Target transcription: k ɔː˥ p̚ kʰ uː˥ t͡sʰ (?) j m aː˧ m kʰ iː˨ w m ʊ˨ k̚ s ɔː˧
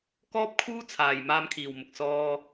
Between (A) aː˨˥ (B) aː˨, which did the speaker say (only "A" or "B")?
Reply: B